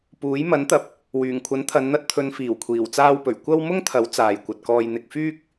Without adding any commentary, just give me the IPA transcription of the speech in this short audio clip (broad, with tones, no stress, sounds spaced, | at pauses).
p uː˨˥ j m ɐ˨˥ n t̪ ɐ˨ p̚ | w yː˨˩ ŋ kʷʰ ɐ˨˥ n t̪ʰ ɐ˨˧ n n̪ ɐ˧ t̚ t̪ʰ ɵ˨˧ n f iː˨˩ w kʷʰ iː˨˩ w t͡s aː˧ w p ɵ˨˩ ɥ kʷ ɐ˥ w m ʊ˥ ŋ t̪ʰ ɐ˨˥ w t͡s aː˨ j kʷ ɐ˨ t̚ k ɔː˧ j n̪ ɪ˨ k̚ f yː˥ k̚